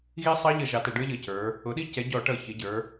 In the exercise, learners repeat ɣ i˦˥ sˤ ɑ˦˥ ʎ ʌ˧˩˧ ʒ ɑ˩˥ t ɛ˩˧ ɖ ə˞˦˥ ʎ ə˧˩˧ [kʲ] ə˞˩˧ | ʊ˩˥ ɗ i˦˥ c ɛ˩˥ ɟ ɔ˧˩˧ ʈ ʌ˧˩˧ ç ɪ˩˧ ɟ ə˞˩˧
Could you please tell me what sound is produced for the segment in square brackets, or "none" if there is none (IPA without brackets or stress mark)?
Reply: c